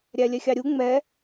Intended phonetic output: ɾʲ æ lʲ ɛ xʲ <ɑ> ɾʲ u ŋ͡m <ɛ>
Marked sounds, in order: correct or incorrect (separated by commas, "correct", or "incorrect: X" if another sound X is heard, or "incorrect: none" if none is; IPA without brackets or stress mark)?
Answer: correct, correct